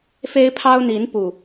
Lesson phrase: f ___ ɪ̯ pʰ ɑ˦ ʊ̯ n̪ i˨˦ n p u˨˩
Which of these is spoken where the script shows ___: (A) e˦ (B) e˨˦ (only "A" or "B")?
A